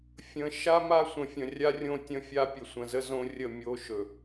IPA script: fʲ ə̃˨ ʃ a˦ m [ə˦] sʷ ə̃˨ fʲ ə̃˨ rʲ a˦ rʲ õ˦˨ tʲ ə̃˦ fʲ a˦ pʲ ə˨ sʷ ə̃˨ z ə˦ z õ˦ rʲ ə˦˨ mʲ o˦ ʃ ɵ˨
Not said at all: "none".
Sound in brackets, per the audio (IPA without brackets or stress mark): a˦